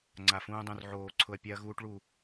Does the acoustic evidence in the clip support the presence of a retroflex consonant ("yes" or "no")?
yes